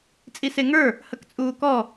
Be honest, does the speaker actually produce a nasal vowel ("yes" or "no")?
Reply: no